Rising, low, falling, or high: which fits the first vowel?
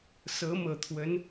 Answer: rising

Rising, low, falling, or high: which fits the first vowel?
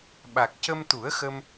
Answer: low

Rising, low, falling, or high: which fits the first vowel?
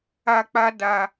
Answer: high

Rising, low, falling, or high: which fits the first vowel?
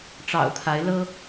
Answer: low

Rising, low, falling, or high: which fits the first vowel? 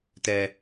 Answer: high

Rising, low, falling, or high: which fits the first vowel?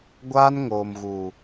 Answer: high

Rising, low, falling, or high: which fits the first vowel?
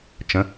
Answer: rising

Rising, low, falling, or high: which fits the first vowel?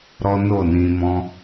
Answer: high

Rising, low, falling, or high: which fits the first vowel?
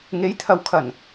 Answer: rising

